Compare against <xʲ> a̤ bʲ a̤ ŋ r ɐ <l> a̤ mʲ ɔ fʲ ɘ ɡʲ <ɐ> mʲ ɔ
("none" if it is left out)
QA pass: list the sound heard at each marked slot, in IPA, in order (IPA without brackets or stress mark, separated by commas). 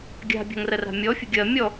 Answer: ɡʲ, r, ɐ